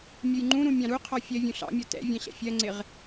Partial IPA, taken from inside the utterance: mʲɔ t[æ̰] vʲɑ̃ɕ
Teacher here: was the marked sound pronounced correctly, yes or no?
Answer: no